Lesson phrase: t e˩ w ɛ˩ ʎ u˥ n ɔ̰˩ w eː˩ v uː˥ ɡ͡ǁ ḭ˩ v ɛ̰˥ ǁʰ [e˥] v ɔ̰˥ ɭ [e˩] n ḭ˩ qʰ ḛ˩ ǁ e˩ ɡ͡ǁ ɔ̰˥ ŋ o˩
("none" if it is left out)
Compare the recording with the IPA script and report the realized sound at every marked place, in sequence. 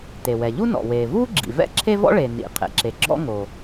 e˥, e˩

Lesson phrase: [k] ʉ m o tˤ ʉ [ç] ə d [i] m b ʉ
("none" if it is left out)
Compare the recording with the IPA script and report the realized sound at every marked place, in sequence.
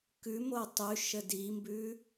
k, ʃ, i

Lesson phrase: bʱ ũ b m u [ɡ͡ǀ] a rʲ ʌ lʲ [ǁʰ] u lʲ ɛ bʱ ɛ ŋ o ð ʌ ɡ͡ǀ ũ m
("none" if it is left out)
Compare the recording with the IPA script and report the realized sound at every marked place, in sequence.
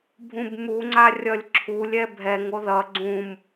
ŋ͡ǀ, ǁʰ

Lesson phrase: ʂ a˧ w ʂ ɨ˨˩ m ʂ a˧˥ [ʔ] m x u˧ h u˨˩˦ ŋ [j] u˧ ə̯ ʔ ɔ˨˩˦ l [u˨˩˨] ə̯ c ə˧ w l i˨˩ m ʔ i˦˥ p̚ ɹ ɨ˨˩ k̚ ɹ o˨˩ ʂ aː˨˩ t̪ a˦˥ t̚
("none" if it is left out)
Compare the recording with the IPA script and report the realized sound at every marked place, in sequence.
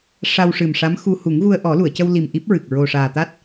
none, ɣ, u˨˩˨

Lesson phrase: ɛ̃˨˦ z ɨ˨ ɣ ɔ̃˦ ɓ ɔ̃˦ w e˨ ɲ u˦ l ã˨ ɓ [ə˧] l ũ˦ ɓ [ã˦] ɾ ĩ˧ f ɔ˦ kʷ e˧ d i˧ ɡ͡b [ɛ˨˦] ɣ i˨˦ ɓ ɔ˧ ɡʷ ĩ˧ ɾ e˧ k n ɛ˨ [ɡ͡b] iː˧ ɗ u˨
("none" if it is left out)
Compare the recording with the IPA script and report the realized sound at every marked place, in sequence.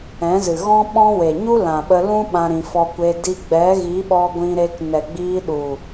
ə˧, ã˦, ɛ˨˦, ɡ͡b

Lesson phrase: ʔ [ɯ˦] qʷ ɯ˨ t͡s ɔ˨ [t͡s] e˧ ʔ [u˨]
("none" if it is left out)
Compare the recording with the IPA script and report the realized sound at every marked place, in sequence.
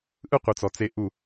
ɯ˦, t͡s, u˦˨

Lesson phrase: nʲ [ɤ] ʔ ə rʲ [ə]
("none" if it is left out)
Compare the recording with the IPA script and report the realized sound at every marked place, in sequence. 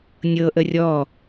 ɤ, ɔ

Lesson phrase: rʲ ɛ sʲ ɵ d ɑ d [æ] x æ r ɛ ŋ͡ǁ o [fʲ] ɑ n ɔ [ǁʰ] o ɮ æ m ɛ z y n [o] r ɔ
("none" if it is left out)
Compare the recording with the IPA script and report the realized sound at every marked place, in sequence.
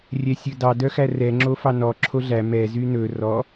œ, f, ǁʰ, ɵ

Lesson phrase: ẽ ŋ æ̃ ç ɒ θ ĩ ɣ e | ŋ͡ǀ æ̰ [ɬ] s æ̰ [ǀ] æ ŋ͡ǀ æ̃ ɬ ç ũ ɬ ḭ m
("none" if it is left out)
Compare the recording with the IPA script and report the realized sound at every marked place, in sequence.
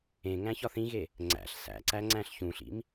ɬ, ǀ

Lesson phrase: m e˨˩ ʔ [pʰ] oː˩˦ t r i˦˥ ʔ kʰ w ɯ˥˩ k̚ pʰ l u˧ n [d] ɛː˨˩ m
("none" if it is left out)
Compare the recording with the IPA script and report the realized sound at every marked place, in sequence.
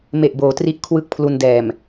b, d

